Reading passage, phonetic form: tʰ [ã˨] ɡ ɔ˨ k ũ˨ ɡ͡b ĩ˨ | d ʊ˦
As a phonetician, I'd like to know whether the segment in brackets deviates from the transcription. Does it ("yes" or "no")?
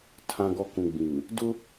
no